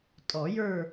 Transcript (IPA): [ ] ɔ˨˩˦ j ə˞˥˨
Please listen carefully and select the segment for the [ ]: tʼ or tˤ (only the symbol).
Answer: tʼ